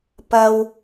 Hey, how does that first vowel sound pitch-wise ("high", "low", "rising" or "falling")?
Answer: low